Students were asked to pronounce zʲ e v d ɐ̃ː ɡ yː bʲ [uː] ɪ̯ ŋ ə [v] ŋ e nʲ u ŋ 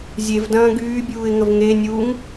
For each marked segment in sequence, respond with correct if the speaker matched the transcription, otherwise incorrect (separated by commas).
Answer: correct, correct